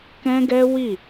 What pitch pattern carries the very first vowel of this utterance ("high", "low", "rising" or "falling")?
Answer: high